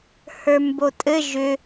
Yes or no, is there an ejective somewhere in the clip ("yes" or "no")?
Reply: yes